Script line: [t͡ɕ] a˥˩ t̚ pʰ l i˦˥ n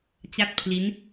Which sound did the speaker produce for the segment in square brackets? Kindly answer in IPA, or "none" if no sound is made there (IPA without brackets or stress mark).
t͡ɕ